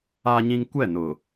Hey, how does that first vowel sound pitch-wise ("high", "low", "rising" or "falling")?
high